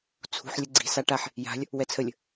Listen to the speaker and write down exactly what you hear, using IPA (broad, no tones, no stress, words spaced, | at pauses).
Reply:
t͡sʰṳħ lʲəɡ͡ǀi̤ saʈaħ | ja̤lʲ | wɛt͡sʰəlʲ